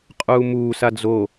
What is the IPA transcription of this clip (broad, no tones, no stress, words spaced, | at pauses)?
qʼuːmuː sad͡zo